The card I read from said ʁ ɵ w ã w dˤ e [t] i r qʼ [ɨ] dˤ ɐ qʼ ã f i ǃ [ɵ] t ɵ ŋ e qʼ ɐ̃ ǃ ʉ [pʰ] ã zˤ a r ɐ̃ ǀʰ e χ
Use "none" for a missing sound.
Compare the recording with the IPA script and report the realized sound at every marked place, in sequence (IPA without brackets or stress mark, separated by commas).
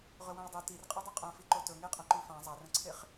t, ɨ, o, f